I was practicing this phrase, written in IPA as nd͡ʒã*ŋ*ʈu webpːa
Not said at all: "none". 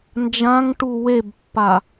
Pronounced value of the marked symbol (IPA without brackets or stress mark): ŋ